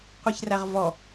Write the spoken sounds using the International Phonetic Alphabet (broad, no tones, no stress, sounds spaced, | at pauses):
qʷ i ç r æ ʁ v ɔ